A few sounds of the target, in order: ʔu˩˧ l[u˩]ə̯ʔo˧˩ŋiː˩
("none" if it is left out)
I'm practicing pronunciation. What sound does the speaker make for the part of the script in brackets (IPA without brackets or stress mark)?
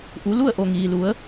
u˥˨